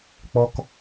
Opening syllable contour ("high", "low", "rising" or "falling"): high